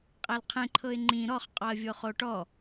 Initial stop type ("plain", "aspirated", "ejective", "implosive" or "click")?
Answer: ejective